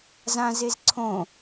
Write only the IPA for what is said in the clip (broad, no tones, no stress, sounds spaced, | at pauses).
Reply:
z ã z e z ǀʰ õ